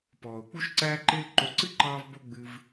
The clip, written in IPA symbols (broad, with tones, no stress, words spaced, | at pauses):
pɔː˨ʊ̯k͡pu˦ʃ ǀæː˦ǃɪː˦l ǃo˨˦ǀɨ˦ǃɑː˧v bo˦ ɡ͡bɨ˧v